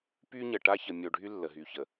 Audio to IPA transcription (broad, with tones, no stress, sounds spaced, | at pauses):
p y˦ ɲ ə˨ ʈ a˦ ç ə˨ mʲ o˨ ɖʱ y˦ lː ə˨ ɦ y˨ ç ə˨